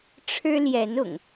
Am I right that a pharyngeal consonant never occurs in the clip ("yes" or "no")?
yes